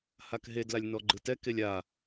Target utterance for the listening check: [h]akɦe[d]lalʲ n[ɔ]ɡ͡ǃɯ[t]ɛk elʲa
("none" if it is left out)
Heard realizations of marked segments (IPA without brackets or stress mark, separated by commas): h, d, ɔ, t